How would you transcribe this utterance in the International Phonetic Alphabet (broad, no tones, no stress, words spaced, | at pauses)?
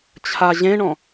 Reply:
t͡ɕʰaʑẽɳɔ̃